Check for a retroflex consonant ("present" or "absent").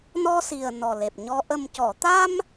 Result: absent